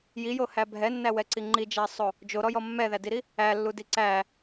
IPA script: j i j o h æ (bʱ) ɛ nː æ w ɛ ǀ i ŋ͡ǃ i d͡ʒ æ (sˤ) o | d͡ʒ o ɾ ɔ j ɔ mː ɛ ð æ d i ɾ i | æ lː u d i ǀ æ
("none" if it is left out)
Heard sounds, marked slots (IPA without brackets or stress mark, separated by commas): bʱ, sˤ